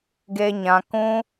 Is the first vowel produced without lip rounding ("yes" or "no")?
yes